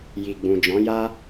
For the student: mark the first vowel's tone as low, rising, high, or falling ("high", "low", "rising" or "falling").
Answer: low